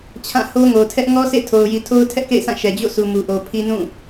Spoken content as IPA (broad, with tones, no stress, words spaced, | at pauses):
t͡ɕʰã˦˨ho˦ ŋo˨tʰɛ˦ʔ ŋɔ˦sʰḛ˦˨tʰo˨ʊ̯ji˨ tʰo˦ʊ̯tʰɛ˦ʔkḛ˦˨ɪ̯sʰã˦˨ ʃɛ˨d͡ʑo̰˦˨sʰu˨ mu˨ʔo˨pʰi˦ nũ˦˨